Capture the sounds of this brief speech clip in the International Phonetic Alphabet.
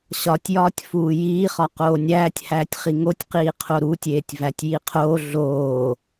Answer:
ɕ ɒ tʲ j ɒː tʲ f uː j iː χ ɒ q oː nʲ æː tʲ h æː tʲ χ i ŋ o tʲ q iː qʰ o ɾ u tʲ eː tʲ v æ tʲ j i qʰ oː ɮ oː

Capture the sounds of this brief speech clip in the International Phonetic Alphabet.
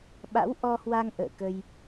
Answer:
ɓ a̰˧˥ w ʔ ɔ˧ h w a˧ ŋ ʔ ə̰ː˧˨ k ə˧ j

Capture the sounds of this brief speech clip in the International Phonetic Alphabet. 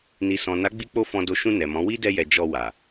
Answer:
n i˨ s ɔ̃˨ n a˨˦ ɡ͡b i˧ k͡p o˧ f ɔ̃˨ d o˨˦ ʃ ũ˧ n ɛ˨ m ɔ̃˨˦ w i˦ d ɛ˧ j ɛ˨ d͡ʒ ɔ˧ w a˨

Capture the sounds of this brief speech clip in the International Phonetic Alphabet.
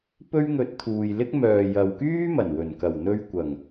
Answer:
p ɵ˥ ɥ ŋ ɵ˧ t̚ t̪ʰ uː˨ j l ɪ˥ k̚ m œː˨ j ɐ˨ w k yː˥ m ɐ˨˩ n w ɵ˨˩ n k ɐ˨˩ w n̪ ɵ˧ ɥ kʷ ɐ˨˩ ŋ

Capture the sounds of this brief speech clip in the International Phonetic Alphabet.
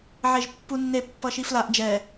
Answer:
ʕ e ʒ pː u nː e pː ʌ ʃ i f l a ʔ d͡ʒ ɛ

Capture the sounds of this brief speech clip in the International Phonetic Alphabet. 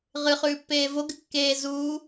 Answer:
ʁ ɨ χ ʉː pː eː v o ɡ ɨ kː eː z uː

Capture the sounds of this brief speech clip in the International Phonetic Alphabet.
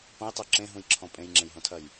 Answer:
p ɐ̃ j tˤ o ǁ ẽ ɦ ũ j ǁʰ ɔ̃ pʼ ẽ j ŋ͡ǁ ẽ j ɦ õ tʰ ɐ j

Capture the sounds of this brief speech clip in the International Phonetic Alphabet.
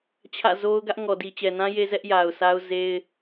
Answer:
t͡ɕʰ ä̰˦˨ z o˦ ʊ̯ ɡ ä˦ ʔ ŋ ɔ˨ d i˨ t͡ɕ ɛ˨ n ã˦ j e˦ z ɛ˦ ʔ j a˨ ʊ̯ s a˦ ʊ̯ z e˦ ɪ̯

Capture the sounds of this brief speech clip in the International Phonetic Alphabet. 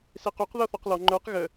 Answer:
s e q o q ð ɔ θ ɔ q l ɔ ŋ͡ǃ ə˞ q ɣ ə

